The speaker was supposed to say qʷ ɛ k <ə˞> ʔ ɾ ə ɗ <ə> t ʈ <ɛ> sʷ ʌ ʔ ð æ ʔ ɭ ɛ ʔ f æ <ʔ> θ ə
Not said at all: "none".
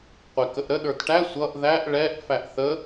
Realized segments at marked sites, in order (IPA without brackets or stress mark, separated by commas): ə, ə˞, æ, ʔ